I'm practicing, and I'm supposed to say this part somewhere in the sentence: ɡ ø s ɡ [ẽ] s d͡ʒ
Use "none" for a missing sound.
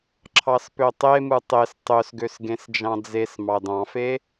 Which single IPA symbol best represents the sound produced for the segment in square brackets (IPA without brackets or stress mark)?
ẽ